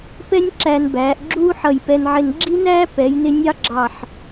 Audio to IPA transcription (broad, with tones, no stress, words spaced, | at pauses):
pɛ˥nʲ ǁæ˧nbæː˩˧ʔɡ͡ǁuː˥ ħʌ˧˩jpɛ˧nʕɪ˧n ɡ͡ǁi˥næː˥ pɛ˩˧jnɪ˧ nʲɑ˥ɡ͡ǁɑ˧˩ħ